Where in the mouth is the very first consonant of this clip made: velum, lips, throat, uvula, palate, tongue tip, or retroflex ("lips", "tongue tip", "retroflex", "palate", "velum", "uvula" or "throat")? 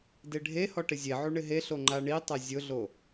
tongue tip